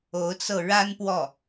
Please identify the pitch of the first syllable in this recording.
rising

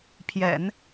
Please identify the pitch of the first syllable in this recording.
low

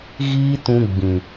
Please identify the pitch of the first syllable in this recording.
high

